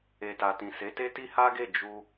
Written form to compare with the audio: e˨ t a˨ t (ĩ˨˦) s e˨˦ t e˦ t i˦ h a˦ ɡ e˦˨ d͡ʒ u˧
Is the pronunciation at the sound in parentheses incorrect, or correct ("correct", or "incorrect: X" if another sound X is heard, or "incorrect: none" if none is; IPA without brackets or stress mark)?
incorrect: ĩ˨